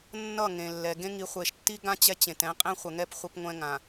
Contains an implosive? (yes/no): no